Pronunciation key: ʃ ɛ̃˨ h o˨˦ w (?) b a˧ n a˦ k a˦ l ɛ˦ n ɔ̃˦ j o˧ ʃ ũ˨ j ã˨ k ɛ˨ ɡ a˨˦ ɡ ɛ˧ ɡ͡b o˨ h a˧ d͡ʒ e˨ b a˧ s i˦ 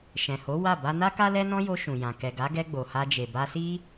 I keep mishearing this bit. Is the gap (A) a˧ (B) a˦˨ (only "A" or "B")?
B